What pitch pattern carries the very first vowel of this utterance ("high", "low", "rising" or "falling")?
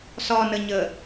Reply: low